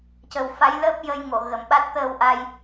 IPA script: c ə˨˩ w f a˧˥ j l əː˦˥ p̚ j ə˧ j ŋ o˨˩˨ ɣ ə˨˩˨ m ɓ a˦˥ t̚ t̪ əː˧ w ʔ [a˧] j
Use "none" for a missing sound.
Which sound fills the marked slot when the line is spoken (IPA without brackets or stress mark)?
a˧